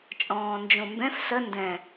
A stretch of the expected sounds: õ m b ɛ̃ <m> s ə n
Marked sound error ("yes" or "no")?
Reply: yes